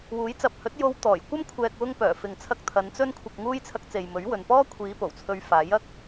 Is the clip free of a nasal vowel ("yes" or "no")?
yes